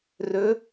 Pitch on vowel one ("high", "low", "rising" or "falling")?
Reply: rising